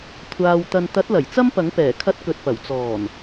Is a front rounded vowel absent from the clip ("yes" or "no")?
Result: yes